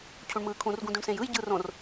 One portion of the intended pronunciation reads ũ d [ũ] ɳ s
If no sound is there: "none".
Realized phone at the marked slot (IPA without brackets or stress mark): ũ